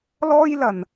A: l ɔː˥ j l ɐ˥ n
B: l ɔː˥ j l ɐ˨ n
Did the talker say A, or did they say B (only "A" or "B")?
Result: B